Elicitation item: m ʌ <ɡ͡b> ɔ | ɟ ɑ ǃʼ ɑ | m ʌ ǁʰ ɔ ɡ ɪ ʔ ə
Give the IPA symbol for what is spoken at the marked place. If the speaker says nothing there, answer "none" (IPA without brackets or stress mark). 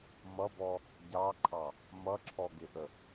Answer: b